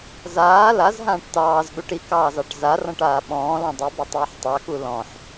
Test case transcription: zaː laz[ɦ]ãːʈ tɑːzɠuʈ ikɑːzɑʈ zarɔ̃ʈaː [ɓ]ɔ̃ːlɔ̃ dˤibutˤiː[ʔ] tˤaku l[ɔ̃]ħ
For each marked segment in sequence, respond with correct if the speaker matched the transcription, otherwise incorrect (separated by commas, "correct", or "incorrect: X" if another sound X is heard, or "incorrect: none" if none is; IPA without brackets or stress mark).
correct, correct, incorrect: ħ, correct